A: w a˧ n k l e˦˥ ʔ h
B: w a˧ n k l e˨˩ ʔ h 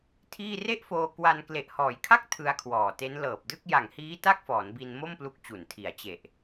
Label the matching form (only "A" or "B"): B